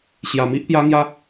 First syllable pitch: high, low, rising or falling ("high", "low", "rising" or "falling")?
low